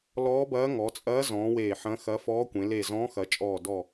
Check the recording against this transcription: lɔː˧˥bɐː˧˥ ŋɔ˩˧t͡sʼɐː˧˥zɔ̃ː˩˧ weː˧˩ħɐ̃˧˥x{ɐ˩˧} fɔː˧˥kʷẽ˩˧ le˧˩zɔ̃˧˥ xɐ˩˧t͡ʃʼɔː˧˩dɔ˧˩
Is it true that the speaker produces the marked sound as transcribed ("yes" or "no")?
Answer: no